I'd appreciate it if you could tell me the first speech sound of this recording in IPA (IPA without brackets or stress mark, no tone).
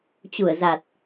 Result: t͡ɕ